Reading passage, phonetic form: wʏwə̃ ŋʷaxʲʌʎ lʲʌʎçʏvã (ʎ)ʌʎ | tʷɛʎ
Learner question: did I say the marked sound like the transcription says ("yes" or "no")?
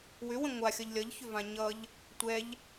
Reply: no